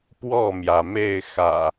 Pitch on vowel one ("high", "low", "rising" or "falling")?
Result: falling